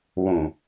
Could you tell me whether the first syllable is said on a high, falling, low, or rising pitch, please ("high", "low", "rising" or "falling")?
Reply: low